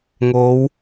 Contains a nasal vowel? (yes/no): no